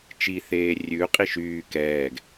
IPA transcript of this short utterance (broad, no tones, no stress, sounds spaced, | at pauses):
t͡ʃ i θ eː rʲ ʉ qʼ i ʃ yː k ɛː ɡ